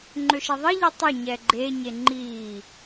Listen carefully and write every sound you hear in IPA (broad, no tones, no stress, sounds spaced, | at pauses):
ŋ͡ǃ ø ʃ e ðˤ i ʎ i tˤ ə ɲ ɛ ɡ͡ǃ e ɲ e ŋ͡ǃ i